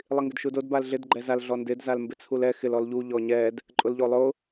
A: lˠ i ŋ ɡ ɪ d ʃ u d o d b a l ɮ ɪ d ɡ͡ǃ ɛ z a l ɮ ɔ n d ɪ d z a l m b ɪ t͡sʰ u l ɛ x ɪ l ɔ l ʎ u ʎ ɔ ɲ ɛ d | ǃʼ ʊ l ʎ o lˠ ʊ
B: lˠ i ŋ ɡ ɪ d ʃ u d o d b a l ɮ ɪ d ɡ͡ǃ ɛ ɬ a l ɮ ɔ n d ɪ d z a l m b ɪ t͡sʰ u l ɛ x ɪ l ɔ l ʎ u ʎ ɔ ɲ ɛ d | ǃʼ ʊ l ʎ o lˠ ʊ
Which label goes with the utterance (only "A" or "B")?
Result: A